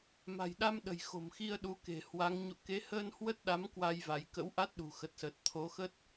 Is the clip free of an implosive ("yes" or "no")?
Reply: no